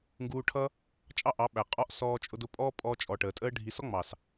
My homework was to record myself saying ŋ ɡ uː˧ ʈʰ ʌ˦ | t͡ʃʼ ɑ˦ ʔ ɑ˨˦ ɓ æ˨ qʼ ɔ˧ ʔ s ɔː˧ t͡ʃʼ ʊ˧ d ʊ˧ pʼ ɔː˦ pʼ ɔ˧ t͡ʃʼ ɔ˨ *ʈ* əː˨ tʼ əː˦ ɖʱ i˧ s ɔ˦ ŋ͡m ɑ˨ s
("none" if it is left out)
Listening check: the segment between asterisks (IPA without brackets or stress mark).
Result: ʈ